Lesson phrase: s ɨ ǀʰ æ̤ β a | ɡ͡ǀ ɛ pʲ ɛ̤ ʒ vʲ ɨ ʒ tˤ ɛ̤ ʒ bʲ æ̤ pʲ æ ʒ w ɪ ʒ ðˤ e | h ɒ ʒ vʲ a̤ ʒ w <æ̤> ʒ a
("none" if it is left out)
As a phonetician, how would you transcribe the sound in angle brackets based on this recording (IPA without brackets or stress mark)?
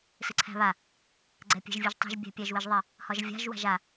a̤